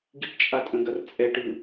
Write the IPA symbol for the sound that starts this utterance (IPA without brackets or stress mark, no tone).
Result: ɡ